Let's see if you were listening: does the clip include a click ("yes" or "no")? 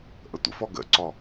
yes